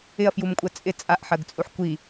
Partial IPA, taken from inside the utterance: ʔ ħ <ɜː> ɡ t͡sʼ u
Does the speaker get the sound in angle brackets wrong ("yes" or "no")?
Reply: yes